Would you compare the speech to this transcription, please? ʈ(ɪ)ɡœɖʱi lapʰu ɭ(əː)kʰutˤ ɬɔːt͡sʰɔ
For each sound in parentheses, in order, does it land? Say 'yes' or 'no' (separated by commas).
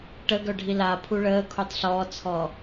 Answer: no, yes